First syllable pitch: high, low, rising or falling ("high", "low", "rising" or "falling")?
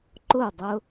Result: falling